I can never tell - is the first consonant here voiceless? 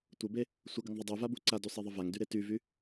yes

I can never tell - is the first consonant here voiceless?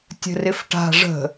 yes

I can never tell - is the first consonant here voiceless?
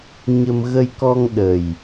no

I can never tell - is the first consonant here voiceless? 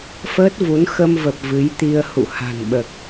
yes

